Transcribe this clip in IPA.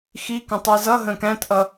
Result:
x i k ə̃ tˤ i z ʌ ɦ ə̃ː k æ̃ t ʔ ʌ

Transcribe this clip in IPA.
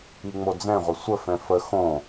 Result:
i ŋ͡m o d͡z ɛ̃ ʁʷ ə sʷ ə f ɛ̃ f ə x õ

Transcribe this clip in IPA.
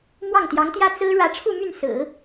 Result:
m w ɑ˥˩ ŋ t̪ j ɑ˧˥ ŋ t̪ j ä˥ t͡s ɹ̩˥ ɻ ä˧˥ ʈ͡ʂʰ u˥˧ m y˥˩ n s ɹ̩˨˩˦

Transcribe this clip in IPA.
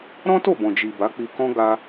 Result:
ɾ ɔ̃˦ t o˦˨ b ɔ̃˨ d͡ʒ i˨ b a˨˦ k͡p i˧ k ɔ̃˦ ɡ a˧

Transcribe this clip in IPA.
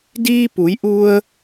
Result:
d iː˧ p u˩˧ j ʔ u˧ ə̯

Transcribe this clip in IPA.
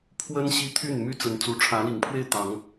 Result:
pʰ w ə˦ n ɕ i˦ t̪ʰ y˥˨ n m y˦ t͡s ə˨˦ n t͡s u˨˦ ʈ͡ʂʰ ä˨˦ l i˨˩ ŋ pʰ w e˥˨ ɪ̯ t̪ ɑ˨˦ ŋ

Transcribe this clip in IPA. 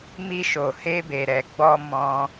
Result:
m i˧ ʃ o˨ h e˧ b e˨ ɾ ɛ˨ ɡ͡b ɔ˧ m ɔ̃˧

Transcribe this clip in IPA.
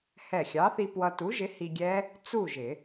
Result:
h ɛ˧˩ xʲ ɑ˨˥ θ i˧ p w ʌ˧ t u˨˥ ʒ ɪ˨˥ h i˧ ɡʲ ɛ˦˥ | t͡s u˥˨ ʒ ɪ˨˩˦

